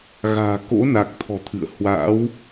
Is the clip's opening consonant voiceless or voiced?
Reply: voiced